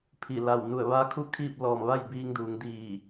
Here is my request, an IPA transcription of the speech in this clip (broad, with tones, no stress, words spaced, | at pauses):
pʰi˧˩la˧˩w nu˧˩ə̯ʋa˧˥ kʰu˧˥ kʰiː˥˨p̚ lɔː˧˩m ʋa˥˨j biː˧ŋduː˩˧ŋdiː˧˩